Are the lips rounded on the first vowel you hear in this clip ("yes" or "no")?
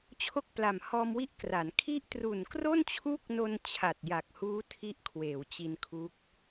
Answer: yes